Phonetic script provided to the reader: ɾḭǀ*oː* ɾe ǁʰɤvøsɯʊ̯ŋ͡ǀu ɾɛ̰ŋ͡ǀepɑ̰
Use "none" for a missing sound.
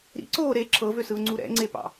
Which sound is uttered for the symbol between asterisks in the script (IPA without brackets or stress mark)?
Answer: oː